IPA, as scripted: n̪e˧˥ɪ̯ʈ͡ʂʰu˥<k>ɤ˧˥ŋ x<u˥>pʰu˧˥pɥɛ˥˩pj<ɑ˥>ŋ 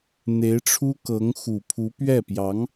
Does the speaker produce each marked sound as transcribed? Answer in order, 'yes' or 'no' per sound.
yes, no, no

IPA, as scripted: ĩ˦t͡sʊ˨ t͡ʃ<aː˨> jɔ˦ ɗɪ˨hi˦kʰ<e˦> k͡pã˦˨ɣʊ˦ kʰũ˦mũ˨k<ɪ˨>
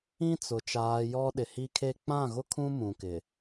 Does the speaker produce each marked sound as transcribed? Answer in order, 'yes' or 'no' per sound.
yes, yes, yes

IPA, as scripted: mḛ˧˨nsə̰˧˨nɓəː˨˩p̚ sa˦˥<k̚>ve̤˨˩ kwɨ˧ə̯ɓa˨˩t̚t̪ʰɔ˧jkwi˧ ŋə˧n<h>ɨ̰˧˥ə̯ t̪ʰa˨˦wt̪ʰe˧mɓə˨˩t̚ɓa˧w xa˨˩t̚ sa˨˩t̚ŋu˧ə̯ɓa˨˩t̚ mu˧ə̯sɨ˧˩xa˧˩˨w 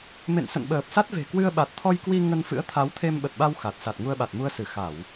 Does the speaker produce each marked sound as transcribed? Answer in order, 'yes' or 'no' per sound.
no, no

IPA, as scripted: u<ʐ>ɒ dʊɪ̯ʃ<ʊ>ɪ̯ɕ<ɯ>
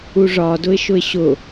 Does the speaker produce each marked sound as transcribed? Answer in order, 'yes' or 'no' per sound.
yes, yes, no

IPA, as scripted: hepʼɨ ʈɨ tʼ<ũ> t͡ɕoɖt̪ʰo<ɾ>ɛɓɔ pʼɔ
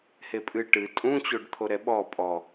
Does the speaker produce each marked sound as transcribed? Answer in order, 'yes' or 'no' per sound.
yes, yes

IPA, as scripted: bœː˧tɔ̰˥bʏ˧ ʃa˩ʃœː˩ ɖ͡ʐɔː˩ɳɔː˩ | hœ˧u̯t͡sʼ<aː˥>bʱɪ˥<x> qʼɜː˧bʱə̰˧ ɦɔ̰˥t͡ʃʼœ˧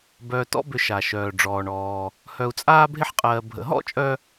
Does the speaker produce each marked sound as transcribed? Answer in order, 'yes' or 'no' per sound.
yes, no

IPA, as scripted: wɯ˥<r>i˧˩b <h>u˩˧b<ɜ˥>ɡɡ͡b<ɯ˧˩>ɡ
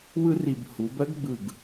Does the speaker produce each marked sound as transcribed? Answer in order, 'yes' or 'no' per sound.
yes, yes, yes, yes

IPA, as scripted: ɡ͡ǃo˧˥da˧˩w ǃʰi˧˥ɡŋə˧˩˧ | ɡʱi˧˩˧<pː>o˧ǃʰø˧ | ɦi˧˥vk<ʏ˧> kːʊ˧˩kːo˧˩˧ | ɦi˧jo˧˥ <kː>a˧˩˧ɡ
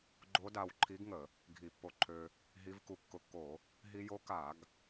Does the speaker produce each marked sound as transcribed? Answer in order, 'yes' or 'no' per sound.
yes, no, no

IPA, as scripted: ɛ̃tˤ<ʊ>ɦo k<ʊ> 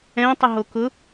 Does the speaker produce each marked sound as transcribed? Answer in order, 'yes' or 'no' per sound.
no, yes

